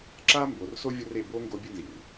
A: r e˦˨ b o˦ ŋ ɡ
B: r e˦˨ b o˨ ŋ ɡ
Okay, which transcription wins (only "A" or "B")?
A